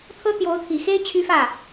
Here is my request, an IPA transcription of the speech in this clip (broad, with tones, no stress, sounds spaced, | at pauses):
t̪ʰ ɤ˥ t̪ j o˧˥ ʊ̯ t̪ʰ i˨˩ x e˥ ɪ̯ t͡ɕʰ y˥ f ä˥˩